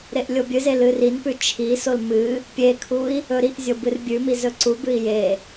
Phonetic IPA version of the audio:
ɾ e ʔ lʲ o bʲ ɨ z e l ɨ r i n p ʉ t͡ʃʰ i s o l m ɨ | pʲ e kʰ u i̯ | ɵ ɾ i ʔ zʲ o b ɨ r bʲ ʉ m i z ɵ ǀ u b ɨ i̯ j e

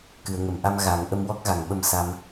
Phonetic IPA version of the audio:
k ɨ˨˩˨ ə̯ ŋ ə˨˩˨ m ʔ a˧ m ɣ a˨˩˦ ŋ ʔ ə˧ m w ɔ˦˥ k̚ ɣ a˨˩ ŋ ɓ ə˧ m s a˧ m

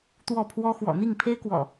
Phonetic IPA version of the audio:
t̪ w ɔ˥˨ pʰ w ɔ˦ x w ɔ̰˨˩ n̪ i˥˨ ŋ pʰ e˦ ɪ̯ k w ɔ̰˨˩

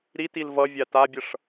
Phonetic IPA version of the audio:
ɾ i t i l v ʌ vʲ a t a bʲ ʌ ʂ

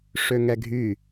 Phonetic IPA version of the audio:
ʂ ø ŋ ɛ ɡʱ y

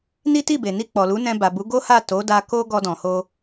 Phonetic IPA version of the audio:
n i˦ t i˦˨ b e˨ n i˧ k͡p ɔ˨ l u˨˦ n ɛ̃˧ b a˨ b u˨˦ ɡ o˦ h a˦˨ t o˨˦ d a˧ k o˧ ɡ ɔ˧ d ɔ̃˨ h o˧

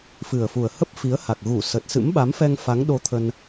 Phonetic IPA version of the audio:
f ɨ˨˩ ə̯ f u˨˩ ə̯ h ə˦˥ p̚ f i˨˦ ə̯ h a˨˩ k̚ ɣ u˧˩ s ə˨˩ t̚ s ɨ̰˧˥ m ɓ a˨˦ m f ɛ˧ ŋ f a˨˦ ŋ ɗ o˧ t̪ʰ ə˧ n

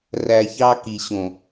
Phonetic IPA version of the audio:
r æ˨ ç ɑ˦ k i˨ ɕ õ˨

